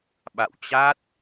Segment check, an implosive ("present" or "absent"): present